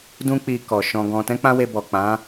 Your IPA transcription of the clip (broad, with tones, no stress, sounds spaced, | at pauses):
d ũ˧ k͡p i˧ k ɔ˨ ʃ ɔ̃˧ ɡ ɔ̃˧ t ɛ̃˦ k͡p ã˦ w e˧ b ɔ˨ k͡p ã˨˦